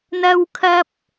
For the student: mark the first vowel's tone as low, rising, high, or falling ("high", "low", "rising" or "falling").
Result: high